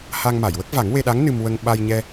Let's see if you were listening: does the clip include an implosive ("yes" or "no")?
yes